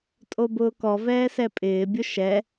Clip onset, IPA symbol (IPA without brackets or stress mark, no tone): tʼ